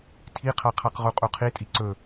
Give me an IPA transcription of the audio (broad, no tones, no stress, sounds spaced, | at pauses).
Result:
tʰ i qʰ a qʰ a q ʁ u qʼ u qʰ i tʼ i ǀ ɵ